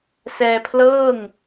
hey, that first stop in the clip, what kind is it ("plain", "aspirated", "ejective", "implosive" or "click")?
aspirated